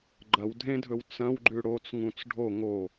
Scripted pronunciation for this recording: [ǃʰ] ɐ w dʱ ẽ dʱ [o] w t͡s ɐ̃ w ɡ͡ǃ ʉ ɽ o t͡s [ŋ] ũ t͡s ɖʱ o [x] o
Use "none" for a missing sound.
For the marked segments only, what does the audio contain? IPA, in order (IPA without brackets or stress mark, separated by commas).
ɡ͡ǃ, ɵ, ŋ, ŋ